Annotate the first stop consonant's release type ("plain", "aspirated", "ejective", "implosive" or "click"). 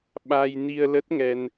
implosive